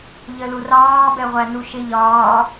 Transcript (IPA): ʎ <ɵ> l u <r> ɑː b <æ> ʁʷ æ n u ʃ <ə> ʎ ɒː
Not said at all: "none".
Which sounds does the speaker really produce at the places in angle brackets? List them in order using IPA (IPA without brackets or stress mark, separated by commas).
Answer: ə, r, ɛ, ɪ